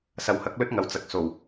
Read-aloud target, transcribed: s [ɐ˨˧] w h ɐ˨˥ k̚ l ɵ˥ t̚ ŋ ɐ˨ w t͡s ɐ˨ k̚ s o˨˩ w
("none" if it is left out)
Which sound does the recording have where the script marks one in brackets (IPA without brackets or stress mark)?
ɐ˨˩